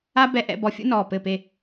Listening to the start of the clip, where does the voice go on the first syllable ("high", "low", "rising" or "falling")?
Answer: high